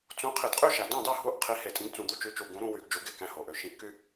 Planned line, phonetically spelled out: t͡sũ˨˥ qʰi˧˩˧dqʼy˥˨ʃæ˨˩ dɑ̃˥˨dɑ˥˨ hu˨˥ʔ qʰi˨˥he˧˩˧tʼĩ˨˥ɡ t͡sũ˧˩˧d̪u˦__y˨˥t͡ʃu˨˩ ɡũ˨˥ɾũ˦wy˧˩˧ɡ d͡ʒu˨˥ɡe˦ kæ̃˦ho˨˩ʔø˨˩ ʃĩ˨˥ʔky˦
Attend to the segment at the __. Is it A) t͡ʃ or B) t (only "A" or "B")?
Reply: A